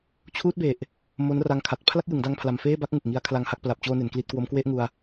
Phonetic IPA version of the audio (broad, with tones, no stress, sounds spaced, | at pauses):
t͡ɕʰ uː˦˥ t̚ b e˨˩ ʔ | m o˦˥ n r a˧ ŋ kʰ a˨˩ t̚ pʰ l a˥˩ k̚ j ɯ˩˦ ŋ d a˧ ŋ pʰ l a˨˩ m f eː˥˩ b a˥˩ k̚ ŋ u˨˩ k̚ ŋ i˧ a̯ kʰ l a˧ ŋ h a˦˥ k̚ p l a˨˩ p̚ t͡ɕ oː˧ n e˩˦ n k l i˦˥ t̚ k w o˦˥ m k w e˥˩ ʔ ŋ u˧ a̯